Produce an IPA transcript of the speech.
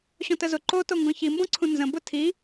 ɕ ɔ̃ t ə z ʊ ǃ o t o ŋ ɡ ɔ̃ ç i m b ɔ̃ ǀʰ ũ n z ə̃ b ʊ tʰ i

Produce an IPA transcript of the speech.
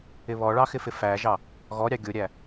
ɪ β ɔ ɭ ɑ x ɪ f ɪ f æ ʒ ɑ | ɣ ɔ ɾʲ ɑ ɡʲ ʊ ɾʲ æ

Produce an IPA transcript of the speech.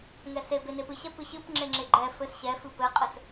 ŋ ɛ s e b e n e p ɨ ɕ ɛ p ɨ ɕ ɨ p ŋ͡ǁ e ŋ͡ǁ e ɡ͡ǃ ɛ f ɘ s ɕ ɛ f ɨ p ɘ qʼ ɘ s

